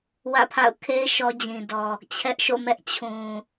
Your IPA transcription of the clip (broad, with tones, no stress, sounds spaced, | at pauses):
w ä̰˦˨ pʰ a̰˦˨ ʊ̯ kʰ e˦ ɪ̯ ʃ ɔ˦ d͡ʑ ĩ˨ d ɔ˨ | t͡ɕʰ ɛ˦ ʔ ʃ o̰˦˨ m ɛ˦ ʔ t͡ɕʰ ũ˨